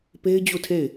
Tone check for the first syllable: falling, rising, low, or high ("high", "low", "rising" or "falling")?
high